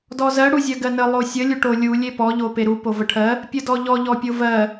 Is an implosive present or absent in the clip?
absent